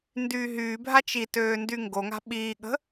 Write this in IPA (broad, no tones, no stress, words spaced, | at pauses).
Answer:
ndyːɦyːbʱa t͡ʃitøː ndyŋɡoŋa̤ ɓiːɠə̤